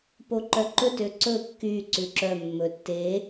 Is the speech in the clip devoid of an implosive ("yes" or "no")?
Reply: yes